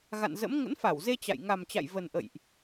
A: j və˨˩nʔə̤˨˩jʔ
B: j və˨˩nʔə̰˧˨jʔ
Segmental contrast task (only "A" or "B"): B